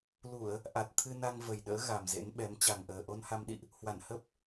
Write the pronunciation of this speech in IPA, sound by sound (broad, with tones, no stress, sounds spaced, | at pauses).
l u˧˩˨ ə̯ | ʔ a˨˩ t̚ t̪ʰ ɨ˧ n a˧ ŋ v ə˨˩ j ɗ ə̰ː˧˥ ɣ a˨˩ m z ḛ˧˥ n ɓ ɛ˨˦ m t͡ɕ a˨˩ ŋ ʔ əː˨˩ ʔ o˧ n h a˧ m ɗ ḭ˧˨ ʔ | h w a˧˩ n h ə˦˥ p̚